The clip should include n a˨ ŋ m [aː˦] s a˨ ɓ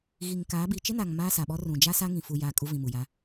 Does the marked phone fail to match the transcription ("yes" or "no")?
no